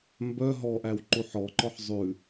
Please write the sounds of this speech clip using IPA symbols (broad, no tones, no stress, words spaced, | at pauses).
mbœ ɦɔʔæw ǃuħɔǃɔħ zˤʉ